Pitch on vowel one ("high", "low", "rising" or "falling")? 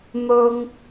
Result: high